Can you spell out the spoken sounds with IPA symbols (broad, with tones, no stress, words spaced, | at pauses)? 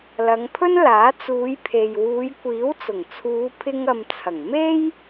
lɐ˨˧ŋpʰɵ˥n laː˨˥t͡suː˨˧jpʰe˨j wuː˨˧jkʷiː˨˥wt͡sʊ˨˩ŋ t͡sʰuː˨˧pʰɪ˧ŋɐ˨mt͡sʰɐ˨˩ŋ me˥j